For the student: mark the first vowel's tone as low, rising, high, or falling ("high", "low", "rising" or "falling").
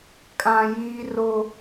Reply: high